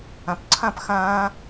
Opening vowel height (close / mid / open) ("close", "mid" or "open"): open